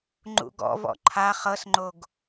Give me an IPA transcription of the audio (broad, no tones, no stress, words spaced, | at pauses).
ŋ͡ǃṵɡɔ̰vɔ̰ ǃʰa χɤsŋ͡ǃoɡ